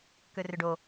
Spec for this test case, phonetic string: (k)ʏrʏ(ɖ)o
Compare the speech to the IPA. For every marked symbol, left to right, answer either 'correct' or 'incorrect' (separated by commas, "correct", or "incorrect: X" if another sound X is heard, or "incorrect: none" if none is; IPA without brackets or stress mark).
correct, correct